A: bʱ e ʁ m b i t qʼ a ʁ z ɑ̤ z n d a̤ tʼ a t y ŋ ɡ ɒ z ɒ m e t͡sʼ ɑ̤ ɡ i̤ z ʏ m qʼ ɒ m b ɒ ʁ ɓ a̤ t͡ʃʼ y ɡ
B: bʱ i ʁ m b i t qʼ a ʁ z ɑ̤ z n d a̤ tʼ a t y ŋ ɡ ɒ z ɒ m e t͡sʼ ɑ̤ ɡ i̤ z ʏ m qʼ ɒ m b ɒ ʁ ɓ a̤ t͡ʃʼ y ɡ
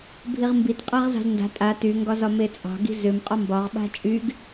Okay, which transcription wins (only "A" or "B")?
B